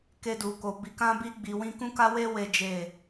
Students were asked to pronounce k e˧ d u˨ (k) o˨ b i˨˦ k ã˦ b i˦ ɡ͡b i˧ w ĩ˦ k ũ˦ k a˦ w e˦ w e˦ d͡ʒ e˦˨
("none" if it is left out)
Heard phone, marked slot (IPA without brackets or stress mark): k